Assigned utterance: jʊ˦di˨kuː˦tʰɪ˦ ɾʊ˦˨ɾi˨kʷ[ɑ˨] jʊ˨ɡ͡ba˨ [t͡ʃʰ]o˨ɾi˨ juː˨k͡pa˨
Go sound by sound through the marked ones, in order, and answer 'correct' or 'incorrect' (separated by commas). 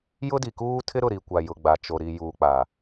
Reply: incorrect, incorrect